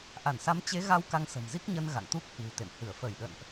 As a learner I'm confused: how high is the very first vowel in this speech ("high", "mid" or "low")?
low